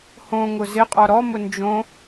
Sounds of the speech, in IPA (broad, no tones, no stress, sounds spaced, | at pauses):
h õ ŋ ʊ z ɪ qʼ ɔ ɾ ɔ m ʊ n d͡ʒ õ